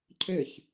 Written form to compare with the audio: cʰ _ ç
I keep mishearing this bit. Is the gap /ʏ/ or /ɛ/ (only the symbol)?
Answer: ʏ